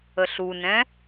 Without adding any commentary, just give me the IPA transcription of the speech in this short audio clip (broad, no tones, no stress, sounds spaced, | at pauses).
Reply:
ə ɬ u n ɛ̃